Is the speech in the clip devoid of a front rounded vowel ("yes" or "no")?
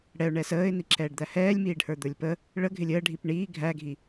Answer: yes